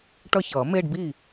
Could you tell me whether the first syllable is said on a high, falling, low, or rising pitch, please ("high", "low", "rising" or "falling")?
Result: falling